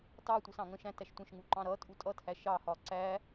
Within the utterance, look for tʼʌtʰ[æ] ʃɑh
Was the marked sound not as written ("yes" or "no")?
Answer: no